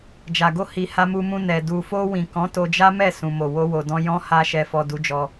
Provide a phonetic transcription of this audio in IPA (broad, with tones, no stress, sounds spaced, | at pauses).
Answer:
d͡ʒ a˨ ɡ o˧ h i˨ h a˧ m u˧ m ũ˧ n ɛ˨ d u˨ f o˧ w ĩ˨ k ɔ̃˨˦ t o˧ d͡ʒ a˦ m ɛ˦˨ s ũ˨ m o˨ w o˧ w o˨ d ɔ̃˧ j ɔ̃˧ h a˧ ʃ ɛ˨ f ɔ˨ d u˨˦ d͡ʒ ɔ˧